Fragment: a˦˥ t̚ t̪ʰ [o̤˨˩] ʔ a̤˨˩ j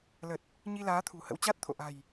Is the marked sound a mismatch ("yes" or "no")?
yes